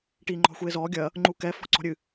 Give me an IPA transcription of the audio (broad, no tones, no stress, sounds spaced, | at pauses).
ʈ iː ŋ͡ǃ ɔ̤ xʷ eː z ɔː ɡʲ ɐ | ŋ͡ǃ u k ɛ f ɔ̤ ǀ ɔ̤ ɾʲ ɨ